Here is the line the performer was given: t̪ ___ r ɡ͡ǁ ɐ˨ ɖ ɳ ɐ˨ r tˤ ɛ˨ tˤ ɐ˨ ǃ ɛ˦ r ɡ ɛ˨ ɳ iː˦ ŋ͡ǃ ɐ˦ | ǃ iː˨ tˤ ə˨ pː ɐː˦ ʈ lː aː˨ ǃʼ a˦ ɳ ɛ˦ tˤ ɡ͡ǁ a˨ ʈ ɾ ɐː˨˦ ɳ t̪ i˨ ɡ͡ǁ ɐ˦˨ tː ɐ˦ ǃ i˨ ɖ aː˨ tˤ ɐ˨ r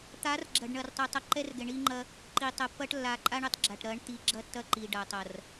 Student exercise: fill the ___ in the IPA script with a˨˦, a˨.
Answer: a˨˦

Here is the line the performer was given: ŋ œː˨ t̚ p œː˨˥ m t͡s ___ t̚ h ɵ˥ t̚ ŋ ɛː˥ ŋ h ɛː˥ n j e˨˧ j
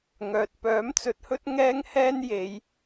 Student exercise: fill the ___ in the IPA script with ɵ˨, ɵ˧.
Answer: ɵ˨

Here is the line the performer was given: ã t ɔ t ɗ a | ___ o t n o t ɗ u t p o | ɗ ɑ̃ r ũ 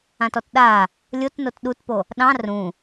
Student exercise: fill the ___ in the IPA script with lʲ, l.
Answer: lʲ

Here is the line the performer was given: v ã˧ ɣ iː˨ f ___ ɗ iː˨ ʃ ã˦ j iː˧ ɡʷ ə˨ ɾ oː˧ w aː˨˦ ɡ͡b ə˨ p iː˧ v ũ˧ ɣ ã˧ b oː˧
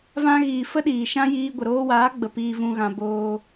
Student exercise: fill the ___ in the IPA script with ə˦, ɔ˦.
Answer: ə˦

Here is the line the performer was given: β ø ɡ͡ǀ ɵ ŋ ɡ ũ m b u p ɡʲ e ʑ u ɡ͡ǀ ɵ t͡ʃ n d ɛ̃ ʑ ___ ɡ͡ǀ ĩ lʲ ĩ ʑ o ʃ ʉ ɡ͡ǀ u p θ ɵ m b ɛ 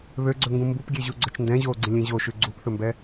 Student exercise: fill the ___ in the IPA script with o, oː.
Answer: oː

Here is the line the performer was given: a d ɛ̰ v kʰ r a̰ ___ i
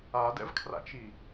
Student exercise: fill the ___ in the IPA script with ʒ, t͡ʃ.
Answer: t͡ʃ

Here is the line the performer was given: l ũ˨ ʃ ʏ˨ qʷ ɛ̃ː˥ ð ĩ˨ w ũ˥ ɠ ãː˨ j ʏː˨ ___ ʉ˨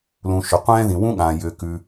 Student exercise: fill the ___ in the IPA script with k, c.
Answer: k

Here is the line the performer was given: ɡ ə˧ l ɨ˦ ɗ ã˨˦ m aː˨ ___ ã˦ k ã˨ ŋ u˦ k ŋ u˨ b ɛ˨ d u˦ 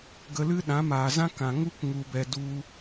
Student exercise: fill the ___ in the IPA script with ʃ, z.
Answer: z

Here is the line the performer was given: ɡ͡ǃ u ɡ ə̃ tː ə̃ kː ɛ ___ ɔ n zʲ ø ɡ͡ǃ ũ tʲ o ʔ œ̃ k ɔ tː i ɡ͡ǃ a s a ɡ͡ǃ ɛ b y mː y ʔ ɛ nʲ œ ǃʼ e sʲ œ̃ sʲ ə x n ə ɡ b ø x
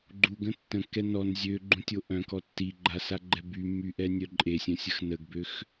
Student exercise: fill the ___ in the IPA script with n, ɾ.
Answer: n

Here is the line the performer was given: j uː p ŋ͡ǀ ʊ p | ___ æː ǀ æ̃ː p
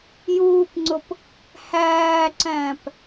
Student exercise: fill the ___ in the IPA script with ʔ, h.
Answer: h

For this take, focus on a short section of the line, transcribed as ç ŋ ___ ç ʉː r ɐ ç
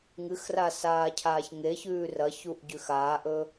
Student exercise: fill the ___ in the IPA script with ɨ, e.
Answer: e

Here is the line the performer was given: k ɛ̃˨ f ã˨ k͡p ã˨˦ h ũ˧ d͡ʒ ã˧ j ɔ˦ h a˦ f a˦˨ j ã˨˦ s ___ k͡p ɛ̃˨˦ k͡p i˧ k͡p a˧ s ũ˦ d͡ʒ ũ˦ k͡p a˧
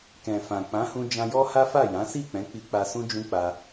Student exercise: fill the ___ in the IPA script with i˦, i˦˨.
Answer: i˦˨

